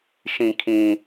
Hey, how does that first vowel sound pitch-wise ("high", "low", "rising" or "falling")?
low